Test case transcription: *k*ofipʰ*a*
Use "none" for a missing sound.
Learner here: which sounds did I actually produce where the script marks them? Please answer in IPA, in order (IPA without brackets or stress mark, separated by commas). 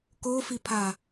k, a